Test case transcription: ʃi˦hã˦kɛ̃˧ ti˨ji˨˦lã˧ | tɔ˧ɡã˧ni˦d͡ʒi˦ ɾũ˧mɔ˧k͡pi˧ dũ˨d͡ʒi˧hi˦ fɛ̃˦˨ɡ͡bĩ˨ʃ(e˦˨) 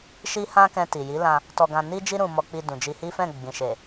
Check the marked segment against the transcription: incorrect: e˨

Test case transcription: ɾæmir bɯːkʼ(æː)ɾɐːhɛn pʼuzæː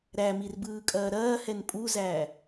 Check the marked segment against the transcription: incorrect: ɐː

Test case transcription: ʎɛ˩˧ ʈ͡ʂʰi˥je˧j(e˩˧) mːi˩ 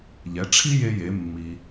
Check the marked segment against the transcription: correct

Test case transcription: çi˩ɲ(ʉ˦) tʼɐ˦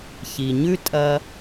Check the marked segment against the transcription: correct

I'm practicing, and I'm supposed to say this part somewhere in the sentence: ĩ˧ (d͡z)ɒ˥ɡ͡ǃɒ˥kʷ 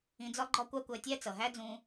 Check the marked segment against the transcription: correct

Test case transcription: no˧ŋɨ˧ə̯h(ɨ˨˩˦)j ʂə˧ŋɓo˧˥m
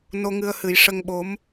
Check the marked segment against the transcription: correct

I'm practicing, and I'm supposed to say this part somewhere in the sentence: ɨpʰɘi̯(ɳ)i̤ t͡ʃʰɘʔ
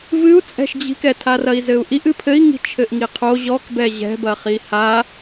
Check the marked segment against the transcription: incorrect: ŋ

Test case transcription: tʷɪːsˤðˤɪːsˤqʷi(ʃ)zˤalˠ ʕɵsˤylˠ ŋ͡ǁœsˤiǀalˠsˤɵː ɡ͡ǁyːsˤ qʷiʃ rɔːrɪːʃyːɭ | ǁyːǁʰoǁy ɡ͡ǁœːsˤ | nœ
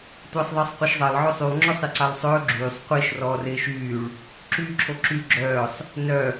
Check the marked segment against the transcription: correct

